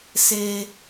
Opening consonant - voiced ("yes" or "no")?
no